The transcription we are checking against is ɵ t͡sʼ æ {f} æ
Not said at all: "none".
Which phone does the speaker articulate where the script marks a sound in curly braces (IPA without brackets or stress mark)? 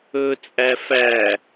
f